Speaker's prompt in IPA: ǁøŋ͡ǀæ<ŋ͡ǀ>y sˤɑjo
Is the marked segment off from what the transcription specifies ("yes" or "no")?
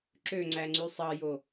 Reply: no